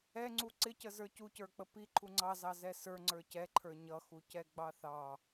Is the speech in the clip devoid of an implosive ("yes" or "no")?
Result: yes